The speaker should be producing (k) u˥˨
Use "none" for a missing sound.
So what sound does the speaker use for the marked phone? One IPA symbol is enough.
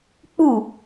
k͡p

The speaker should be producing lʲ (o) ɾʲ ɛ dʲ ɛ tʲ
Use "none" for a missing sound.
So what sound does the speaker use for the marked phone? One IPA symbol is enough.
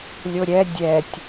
o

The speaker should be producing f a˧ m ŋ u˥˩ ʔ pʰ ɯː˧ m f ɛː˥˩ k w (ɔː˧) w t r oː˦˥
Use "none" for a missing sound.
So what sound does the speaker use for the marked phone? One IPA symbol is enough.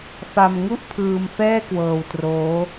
ɤː˧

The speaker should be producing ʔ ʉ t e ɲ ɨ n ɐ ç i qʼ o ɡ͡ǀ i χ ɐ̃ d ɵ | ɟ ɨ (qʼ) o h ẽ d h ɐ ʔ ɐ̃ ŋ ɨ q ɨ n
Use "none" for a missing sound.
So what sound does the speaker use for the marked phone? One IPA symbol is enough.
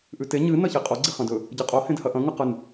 qʼ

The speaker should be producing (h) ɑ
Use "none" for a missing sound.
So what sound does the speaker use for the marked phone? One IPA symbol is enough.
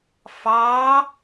f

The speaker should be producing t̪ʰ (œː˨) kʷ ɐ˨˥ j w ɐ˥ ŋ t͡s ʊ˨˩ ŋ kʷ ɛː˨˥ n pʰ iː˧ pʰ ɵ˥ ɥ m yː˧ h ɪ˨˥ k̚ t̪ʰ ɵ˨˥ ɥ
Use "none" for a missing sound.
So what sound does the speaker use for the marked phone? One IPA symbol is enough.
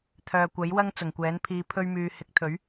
œː˨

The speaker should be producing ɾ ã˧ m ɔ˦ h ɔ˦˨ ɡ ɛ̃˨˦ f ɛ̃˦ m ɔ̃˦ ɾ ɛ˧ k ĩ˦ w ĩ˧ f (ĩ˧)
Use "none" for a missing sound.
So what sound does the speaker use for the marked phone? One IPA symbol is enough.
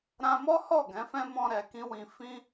ĩ˦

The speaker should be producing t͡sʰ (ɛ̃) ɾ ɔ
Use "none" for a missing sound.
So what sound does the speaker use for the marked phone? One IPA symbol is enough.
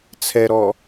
ɛ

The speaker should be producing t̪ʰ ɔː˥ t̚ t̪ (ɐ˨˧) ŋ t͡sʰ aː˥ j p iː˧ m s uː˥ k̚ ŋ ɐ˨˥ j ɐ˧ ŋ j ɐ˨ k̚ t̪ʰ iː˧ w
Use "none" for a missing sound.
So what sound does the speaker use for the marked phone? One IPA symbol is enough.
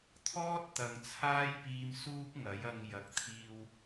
ɐ˨˧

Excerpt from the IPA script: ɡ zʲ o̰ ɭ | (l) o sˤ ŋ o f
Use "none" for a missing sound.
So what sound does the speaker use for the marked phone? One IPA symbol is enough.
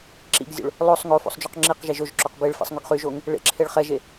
lˠ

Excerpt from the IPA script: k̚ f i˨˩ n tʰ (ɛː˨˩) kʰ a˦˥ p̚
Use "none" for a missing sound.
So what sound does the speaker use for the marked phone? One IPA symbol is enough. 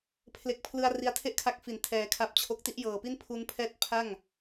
ɛː˨˩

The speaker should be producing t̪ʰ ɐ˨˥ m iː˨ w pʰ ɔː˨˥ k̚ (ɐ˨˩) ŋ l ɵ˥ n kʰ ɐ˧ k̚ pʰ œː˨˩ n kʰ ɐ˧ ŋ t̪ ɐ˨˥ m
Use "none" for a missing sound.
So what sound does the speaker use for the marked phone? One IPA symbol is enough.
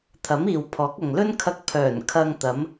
ɐ˨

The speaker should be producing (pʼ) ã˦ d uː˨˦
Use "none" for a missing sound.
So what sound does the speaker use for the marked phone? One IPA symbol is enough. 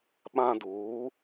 ɓ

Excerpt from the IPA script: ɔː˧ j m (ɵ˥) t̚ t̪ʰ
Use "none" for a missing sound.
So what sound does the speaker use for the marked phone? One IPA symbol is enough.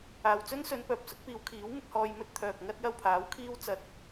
ɵ˥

